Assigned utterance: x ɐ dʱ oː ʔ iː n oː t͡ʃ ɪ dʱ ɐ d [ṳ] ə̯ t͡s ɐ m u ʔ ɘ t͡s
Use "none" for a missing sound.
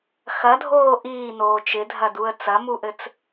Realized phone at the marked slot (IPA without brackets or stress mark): u